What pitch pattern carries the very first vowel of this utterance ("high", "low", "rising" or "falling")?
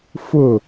falling